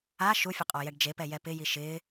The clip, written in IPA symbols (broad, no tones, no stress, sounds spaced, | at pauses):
a ʃ u fʲ ʊ qʼ ɔ j ɛ ɖ d͡ʒ e p ɛ j ɛ p ɪ j i ʃ ɪː